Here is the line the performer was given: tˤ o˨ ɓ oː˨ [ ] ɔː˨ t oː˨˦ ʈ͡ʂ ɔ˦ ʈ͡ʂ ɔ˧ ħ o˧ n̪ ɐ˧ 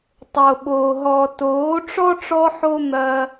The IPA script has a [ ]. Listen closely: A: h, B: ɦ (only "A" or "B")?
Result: B